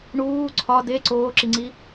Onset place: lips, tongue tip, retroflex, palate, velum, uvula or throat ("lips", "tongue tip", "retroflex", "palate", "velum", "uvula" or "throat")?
retroflex